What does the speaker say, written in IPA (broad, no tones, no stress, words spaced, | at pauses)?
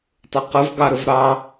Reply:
tˤʊqəv ɡɑɾəvɾɑ